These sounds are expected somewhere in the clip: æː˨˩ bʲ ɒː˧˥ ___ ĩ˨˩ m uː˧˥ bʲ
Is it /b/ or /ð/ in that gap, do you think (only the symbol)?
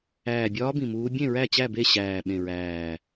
b